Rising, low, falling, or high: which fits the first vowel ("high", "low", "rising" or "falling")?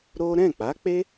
high